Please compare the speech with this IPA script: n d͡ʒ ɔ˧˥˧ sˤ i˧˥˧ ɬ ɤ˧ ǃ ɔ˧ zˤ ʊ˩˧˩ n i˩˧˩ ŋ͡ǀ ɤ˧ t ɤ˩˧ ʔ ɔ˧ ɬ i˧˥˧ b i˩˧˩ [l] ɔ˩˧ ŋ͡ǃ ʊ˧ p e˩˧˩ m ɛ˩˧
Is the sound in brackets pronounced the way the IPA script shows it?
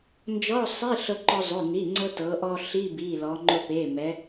yes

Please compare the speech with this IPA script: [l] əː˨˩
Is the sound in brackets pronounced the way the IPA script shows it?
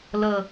yes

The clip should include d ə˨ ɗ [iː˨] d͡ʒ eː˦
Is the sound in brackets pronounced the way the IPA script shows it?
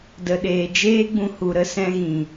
no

